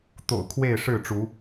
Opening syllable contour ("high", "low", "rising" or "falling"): low